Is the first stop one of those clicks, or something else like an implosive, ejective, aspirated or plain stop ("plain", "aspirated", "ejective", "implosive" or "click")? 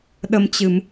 implosive